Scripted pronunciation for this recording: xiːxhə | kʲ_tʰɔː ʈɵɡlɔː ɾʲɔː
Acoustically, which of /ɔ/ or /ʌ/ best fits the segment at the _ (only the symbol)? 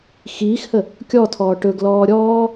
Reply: ɔ